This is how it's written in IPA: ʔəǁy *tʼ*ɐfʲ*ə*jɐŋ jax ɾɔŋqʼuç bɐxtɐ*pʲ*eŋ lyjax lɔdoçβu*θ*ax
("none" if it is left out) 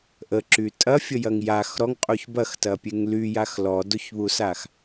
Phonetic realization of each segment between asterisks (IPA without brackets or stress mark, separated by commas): tʼ, ə, pʲ, s